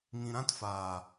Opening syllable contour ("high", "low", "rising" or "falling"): low